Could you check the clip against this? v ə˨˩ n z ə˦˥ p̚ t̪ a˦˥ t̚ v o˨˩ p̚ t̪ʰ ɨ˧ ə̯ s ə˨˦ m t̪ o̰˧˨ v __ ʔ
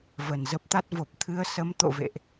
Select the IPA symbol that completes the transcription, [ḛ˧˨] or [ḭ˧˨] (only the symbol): ḛ˧˨